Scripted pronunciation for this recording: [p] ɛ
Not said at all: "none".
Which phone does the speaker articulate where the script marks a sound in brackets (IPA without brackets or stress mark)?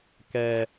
k